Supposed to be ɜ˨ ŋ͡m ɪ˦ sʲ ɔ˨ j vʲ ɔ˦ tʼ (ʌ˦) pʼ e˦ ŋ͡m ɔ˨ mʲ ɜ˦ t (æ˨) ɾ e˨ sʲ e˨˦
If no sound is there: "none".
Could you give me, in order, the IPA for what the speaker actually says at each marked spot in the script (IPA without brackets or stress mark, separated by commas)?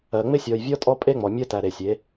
ɔ˦, æ˨